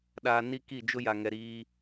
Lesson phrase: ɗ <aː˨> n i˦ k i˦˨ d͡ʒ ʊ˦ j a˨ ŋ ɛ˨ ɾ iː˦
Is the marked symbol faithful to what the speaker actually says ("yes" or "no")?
yes